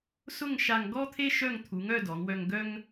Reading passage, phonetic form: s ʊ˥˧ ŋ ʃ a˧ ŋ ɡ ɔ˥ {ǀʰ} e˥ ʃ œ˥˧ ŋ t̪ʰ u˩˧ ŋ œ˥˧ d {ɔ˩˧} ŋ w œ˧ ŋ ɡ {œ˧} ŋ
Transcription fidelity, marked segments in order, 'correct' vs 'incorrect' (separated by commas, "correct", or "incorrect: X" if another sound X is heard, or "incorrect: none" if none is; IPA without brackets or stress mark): incorrect: t̪ʰ, correct, incorrect: œ˥